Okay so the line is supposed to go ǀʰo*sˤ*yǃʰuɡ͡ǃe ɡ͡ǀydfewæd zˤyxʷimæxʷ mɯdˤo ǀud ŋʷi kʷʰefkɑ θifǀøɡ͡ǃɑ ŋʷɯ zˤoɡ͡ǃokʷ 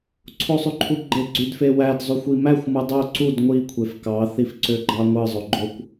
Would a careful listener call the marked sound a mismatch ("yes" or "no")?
no